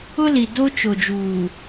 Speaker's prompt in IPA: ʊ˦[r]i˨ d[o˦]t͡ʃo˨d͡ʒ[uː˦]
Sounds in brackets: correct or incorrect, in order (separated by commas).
incorrect, correct, incorrect